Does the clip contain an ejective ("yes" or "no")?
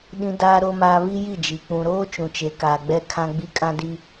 yes